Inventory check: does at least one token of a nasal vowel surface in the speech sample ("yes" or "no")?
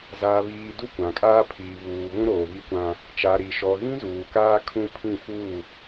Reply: yes